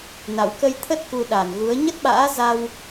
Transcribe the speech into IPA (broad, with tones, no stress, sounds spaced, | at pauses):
n a̰˧˨ w k ə˧ j t̪ʰ ə˦˥ t̚ k u˧ ɗ a˨˩ n ɣ u˨˦ ə̯ ɲ ə˦˥ t̚ ɓ a̰ː˧˥ z a˧ w